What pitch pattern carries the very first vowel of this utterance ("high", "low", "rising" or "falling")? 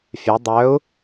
rising